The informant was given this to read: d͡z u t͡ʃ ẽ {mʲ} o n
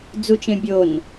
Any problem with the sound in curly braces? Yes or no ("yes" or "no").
yes